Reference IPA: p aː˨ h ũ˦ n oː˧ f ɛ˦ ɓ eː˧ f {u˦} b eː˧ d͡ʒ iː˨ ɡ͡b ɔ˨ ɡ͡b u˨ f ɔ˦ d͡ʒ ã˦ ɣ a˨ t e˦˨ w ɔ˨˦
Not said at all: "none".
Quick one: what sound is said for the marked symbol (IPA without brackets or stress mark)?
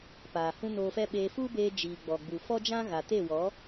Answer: u˦